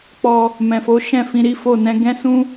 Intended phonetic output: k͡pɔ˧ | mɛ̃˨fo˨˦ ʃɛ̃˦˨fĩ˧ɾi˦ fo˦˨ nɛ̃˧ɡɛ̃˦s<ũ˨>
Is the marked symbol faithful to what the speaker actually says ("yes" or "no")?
no